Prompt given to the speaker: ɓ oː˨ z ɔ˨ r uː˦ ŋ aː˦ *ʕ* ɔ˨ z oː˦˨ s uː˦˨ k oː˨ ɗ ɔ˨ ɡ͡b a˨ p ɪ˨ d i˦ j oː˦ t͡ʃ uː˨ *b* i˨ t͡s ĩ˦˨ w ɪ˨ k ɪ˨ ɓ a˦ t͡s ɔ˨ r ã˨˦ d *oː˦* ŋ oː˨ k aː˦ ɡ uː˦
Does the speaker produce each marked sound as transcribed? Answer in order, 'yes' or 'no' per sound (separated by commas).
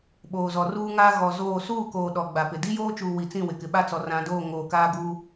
no, no, no